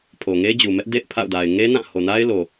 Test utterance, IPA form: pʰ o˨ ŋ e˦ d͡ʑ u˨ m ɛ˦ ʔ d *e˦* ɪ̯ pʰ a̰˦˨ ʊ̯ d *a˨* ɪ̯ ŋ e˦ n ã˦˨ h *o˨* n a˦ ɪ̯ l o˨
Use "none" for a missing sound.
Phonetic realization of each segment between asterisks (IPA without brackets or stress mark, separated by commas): ḛ˦˨, a˨, o˨